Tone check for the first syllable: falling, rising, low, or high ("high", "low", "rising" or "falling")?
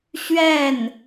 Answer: falling